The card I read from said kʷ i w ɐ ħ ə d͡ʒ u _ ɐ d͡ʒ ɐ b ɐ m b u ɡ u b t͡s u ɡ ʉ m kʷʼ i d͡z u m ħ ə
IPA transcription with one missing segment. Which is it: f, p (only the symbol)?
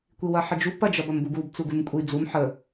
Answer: p